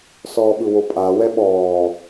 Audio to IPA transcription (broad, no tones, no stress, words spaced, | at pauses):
sɔːɓɯwopʼa wɛɓɔː